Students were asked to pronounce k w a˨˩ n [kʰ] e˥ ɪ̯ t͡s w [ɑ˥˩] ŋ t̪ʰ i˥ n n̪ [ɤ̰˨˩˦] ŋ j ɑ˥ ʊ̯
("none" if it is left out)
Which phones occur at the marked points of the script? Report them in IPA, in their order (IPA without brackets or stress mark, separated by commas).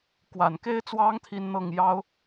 k, ɑ˥, ɤ˥˩